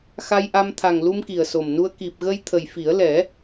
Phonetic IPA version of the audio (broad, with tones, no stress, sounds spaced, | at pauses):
x a˧ j ʔ a˧ m t̪ʰ a˨˩ ŋ l u˧ m k i˨˩ ə̯ s o˨˩ m n u˧ ə̯ k i˨˩ p̚ ɣ ə˧ j t̪ʰ ə˨˩ j f i˨˩˦ ə̯ l ɛ˨˩˦